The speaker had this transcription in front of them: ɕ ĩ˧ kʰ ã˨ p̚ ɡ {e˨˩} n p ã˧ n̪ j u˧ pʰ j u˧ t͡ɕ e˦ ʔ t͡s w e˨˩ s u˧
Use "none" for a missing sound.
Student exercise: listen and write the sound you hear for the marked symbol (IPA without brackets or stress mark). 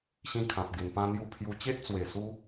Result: e˨˩